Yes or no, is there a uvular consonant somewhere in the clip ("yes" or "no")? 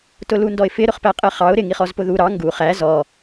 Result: yes